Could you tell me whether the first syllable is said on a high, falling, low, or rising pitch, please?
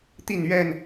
falling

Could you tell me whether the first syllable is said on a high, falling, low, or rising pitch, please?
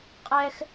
high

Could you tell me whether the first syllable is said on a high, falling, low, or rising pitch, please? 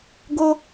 high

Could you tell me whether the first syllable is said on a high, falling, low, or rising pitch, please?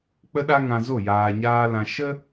high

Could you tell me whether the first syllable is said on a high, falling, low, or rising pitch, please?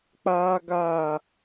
high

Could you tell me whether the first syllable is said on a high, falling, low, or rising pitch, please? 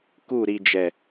falling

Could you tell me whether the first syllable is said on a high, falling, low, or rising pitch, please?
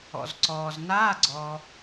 low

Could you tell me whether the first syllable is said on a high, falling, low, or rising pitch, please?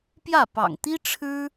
falling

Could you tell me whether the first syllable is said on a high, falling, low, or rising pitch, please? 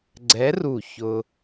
rising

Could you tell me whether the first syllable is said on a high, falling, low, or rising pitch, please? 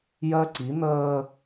high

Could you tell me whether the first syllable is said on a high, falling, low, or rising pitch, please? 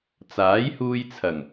rising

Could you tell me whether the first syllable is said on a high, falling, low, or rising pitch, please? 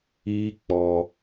high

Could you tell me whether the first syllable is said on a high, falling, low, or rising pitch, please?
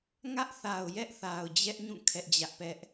high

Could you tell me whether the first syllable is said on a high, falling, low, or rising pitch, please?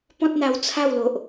high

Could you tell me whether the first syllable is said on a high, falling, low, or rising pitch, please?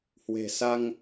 low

